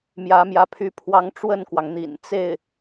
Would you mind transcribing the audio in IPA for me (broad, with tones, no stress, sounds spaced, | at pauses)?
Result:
m j ä˧˥ m j ä˧˥ pʰ y˧˥ pʰ w ɑ˧˥ ŋ ʈ͡ʂ w ə˥˩ n k w ɑ˩ ŋ n̪ ḭ˨˩ n t͡s e˥˩ ɪ̯